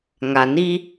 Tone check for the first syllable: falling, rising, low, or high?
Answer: low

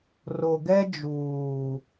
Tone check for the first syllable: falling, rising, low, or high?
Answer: low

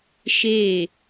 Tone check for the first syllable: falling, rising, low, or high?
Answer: falling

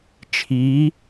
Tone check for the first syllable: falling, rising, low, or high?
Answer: rising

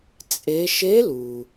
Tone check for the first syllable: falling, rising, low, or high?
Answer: rising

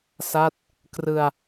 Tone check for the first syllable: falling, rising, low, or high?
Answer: falling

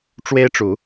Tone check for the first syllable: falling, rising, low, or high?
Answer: high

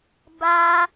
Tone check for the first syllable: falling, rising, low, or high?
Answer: high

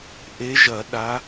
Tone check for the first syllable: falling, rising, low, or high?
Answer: rising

